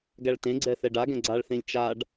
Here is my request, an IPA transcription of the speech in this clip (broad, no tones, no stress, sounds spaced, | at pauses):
ɡ æ ɭ t ẽ ɡ͡ǀ ɛ θ ɛ ɖ a ɡ ɛ̃ ɡ͡ǀ a ɭ θ ẽ lʲ t͡ʃ a ɖ